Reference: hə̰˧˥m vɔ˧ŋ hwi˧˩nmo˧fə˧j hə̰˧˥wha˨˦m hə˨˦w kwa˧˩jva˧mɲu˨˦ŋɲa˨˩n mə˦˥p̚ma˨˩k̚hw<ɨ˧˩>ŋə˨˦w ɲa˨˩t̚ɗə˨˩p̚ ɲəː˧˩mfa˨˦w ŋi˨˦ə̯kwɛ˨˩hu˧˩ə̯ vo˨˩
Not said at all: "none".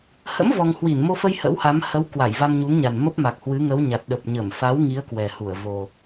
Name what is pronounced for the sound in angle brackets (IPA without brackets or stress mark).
ɨ˨˦